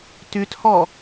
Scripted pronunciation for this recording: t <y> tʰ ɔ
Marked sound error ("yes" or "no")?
no